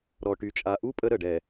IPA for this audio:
ɾ ɔ˨ ʈ y˨ t͡ʃʼ a˨ ʔ u˦ pʼ ə˦ ɾ ə˨ ɖ ɛ˨

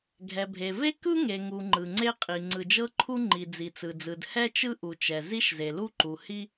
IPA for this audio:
ɡʱ ɛ˩ bʱ e˩ v e˥ k ɯ˥ ŋ e˩ ŋ u˩ ŋ͡ǃ ɯ˩ ŋ͡ǀ e˥ qʼ i˩ ŋ͡ǀ ɯ˩ d͡ʒ ɤ˥ ǃʰ u˥ ŋ͡ǃ i˩ d͡z i˩ t͡s ɯ˩ d͡z ɯ˩ d h ɛ˥ t͡ʃ ɯ˥ ʔ u˩ t͡ʃ ɛ˩ z i˥ ʃ z e˩ l u˥ ǃ u˩ h i˥

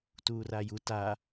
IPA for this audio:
t uː r a j u t a

